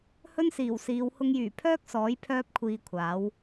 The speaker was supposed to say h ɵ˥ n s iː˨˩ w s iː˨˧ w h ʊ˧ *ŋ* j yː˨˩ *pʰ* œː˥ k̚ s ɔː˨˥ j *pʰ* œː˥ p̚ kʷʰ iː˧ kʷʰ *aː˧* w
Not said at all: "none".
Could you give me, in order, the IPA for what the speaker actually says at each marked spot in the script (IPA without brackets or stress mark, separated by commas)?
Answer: ŋ, pʰ, pʰ, aː˨˥